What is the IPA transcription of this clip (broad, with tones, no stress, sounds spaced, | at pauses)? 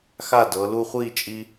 x a˥˩ d ɤ˩˧ l u˧ χʷ i˥˩ t͡ʃʼ i˧